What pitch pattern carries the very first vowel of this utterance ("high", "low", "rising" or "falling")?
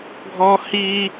high